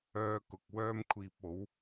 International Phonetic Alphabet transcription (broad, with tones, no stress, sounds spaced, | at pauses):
œː˧ k ʊ˨ k̚ w œː˥ m kʷʰ iː˧ p̚ o˨˥ w